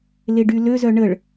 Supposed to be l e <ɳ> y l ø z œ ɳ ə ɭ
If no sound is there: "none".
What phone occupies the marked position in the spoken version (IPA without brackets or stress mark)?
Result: ɖ